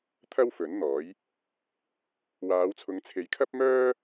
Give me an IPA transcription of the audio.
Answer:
t̪ʰ ɐ˥ w f ɵ˨˥ n n̪ ɔː˨˥ j | w aː˨˧ w t͡sʰ ʊ˨˧ ŋ t͡sʰ e˨˧ j kʰ ɐ˥ p̚ m œː˥

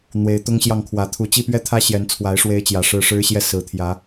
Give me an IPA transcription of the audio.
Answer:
n̪ w e˨˦ ɪ̯ t̪ ʊ˦ ŋ ɕ j ɑ˥˨ ŋ kʰ w ä˨˦ t̪ʰ u˨˩ t͡ɕ i˥˨ p ɥ ɛ˥˨ t̪ʰ ä˦ ɕ j ɛ˨˦ n t͡sʰ w a˨˦ ɪ̯ ʂ w e˦ ɪ̯ t͡ɕ j ä˨˩ ʂ ɻ̩˥˨ ʂ ɻ̩˦ ɕ j ɛ˥˨ s ɹ̩˨˩ t̪ʰ j ä˨˦

